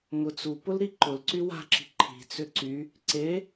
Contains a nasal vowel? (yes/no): no